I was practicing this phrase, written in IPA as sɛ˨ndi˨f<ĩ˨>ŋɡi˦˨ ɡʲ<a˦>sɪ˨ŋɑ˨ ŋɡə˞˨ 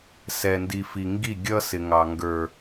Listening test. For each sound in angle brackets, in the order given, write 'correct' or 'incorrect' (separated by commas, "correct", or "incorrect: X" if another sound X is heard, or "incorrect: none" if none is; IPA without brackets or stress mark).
incorrect: i˨, incorrect: ʌ˦